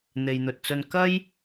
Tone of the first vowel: low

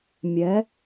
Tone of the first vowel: rising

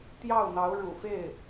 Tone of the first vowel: falling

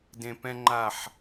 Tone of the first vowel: low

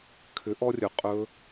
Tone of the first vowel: rising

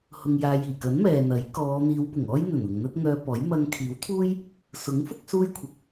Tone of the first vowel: low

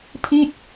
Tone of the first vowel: falling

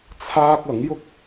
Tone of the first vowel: high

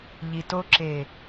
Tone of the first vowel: low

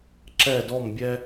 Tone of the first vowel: falling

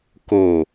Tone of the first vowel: low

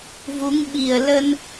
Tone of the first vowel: rising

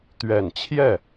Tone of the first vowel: low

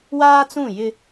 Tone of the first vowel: high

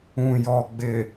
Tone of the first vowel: low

